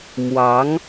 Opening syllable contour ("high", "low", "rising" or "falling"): rising